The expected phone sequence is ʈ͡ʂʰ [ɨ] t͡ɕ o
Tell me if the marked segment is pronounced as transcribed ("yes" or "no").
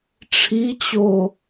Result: no